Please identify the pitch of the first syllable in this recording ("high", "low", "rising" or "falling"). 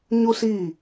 high